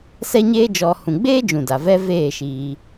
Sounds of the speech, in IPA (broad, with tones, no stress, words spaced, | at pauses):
sɛ˦ɲeː˦d͡ʒɔ˧ hũ˨ɡ͡beː˦d͡ʒũ˨ da˨vɛ˦ veː˦˨ʃiː˧